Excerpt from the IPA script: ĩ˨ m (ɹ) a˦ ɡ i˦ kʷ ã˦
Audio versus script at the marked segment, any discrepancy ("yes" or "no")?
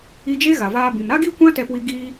yes